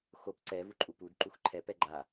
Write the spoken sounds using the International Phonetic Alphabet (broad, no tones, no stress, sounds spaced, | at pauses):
x o p ǀ ɛ v u ǃʼ u p u d ǃ u x ǃʰ ɛ p ɛ ɡ͡ǃ a